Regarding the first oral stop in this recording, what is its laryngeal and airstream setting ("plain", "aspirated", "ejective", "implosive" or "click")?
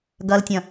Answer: plain